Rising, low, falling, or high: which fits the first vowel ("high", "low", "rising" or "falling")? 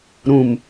low